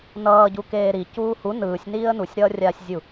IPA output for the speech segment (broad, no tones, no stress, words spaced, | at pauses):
nʌː ɟukeːɾi cuːhu nɯːsʲniːə̯ nusʲɾʌːrʲaːsʲzʲu